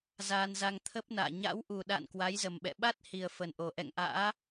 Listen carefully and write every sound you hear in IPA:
z aː˧ n z a˧ ŋ t̪ʰ ə˦˥ p̚ n a̰ː˧˨ ɲ a̰˧˥ w ʔ u˨˩ ɗ a̰˧˨ n k w a˨˦ j z ə˨˩ m ɓ ɛ̰˧˨ ɓ a˦˥ t̚ h i˨˩ ə̯ f ə˨˩ n ʔ o˨˩ ʔ ɛ̰˧˨ ŋ ʔ a̰ː˧˥

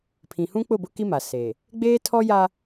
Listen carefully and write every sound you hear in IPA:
pʰ ĩ˨ h ũ˦ k͡p ʊ˦˨ b ʊ˦ k i˦ m a˨ s e˨ | ɡ͡b eː˦ tʰ ɔ˦ j a˦

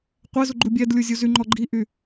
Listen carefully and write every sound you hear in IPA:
qʷ ɛ z u ɡ͡ǃ u bʲ ɛ d lʲ u zʲ u z y ŋ͡ǃ ɔ ɡ͡ǃ i ʔ y

